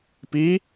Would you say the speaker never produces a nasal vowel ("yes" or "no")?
yes